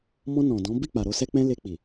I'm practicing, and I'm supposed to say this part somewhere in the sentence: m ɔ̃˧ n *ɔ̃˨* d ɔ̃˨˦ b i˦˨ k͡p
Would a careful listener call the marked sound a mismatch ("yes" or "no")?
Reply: no